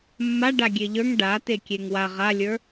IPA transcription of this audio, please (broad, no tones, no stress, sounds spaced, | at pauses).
mː a ɖ a ɡʲ e ʎ ə˞ ŋ ɖ a t e kʲ e ŋ w a ʁ a lʲ ə˞